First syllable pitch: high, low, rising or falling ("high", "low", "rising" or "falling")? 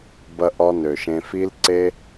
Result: high